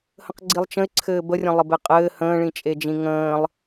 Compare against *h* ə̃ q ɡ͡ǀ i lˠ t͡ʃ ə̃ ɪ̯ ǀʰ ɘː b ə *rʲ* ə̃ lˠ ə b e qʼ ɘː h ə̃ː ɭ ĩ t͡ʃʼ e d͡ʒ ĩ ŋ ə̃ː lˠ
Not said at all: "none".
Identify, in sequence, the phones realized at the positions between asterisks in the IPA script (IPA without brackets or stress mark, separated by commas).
h, rʲ